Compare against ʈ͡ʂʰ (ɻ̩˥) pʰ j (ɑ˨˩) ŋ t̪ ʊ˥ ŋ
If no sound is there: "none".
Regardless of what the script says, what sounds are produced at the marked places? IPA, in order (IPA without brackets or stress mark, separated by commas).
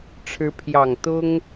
ɻ̩˧˥, ɑ˨˩